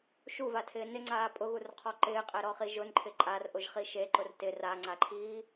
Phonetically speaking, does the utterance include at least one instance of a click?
yes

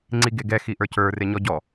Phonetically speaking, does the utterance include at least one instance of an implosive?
no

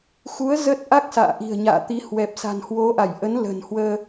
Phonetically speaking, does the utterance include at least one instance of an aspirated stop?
no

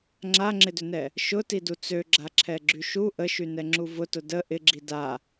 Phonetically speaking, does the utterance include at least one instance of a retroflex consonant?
no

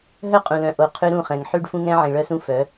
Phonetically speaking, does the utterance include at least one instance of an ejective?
yes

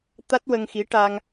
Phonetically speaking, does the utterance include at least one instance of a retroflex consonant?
yes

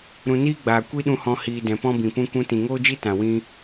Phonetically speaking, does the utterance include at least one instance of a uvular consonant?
no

